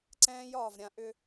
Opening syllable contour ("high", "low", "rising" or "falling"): high